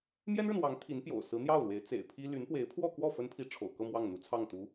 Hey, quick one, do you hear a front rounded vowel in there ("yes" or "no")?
yes